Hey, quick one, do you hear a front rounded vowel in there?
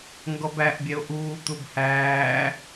no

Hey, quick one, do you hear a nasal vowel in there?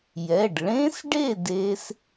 yes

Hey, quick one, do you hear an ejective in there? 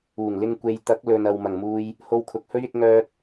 no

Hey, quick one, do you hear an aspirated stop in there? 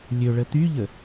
no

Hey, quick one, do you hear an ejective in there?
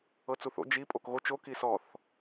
yes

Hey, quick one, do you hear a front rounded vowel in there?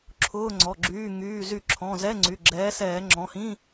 yes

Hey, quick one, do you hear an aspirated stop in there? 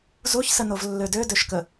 no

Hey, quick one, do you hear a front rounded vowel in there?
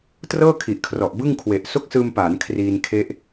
no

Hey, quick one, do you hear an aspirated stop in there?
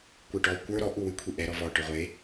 yes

